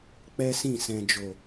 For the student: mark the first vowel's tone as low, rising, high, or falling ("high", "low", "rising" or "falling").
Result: high